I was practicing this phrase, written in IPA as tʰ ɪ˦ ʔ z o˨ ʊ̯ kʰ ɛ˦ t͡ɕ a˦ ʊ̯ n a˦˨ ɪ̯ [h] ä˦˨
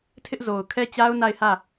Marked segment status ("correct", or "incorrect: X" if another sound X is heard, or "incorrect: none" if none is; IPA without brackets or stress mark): correct